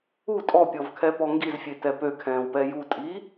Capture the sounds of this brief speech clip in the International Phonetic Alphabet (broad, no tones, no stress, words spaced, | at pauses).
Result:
u tʼɔpʲɔvkʰɛpɔ ŋɡizfʲetɛ pøkʰɛ̃ːwpɛ jutʼi